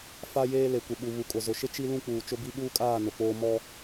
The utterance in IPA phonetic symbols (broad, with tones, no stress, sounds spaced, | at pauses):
f a˦ j eː˦ l e˨ kʷ ɪ˨ ɓ u˨ β u˨ kʼ ʊ˨ z ʊ˨ ʃ ɪ˦ t͡ʃ i˦ l ũ˦ k͡p uː˨ t͡ʃ ʊ˦ b i˦ ɓ uː˦ kʼ aː˦˨ n ʊ˨ k͡p oː˦ m ɔ˦